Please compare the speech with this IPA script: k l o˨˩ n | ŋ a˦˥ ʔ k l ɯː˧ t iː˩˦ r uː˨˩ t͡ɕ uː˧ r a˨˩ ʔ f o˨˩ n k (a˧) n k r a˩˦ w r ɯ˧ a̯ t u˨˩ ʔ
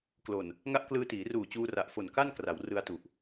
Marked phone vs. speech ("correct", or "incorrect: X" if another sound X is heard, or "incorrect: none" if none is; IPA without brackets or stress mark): incorrect: a˥˩